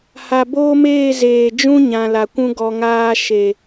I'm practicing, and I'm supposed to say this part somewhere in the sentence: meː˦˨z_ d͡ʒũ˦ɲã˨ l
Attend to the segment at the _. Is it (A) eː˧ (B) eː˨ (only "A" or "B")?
B